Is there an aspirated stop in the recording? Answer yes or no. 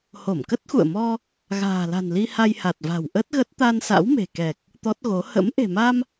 no